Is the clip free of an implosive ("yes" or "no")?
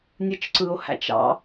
yes